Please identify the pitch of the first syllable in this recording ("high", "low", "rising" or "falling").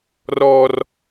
high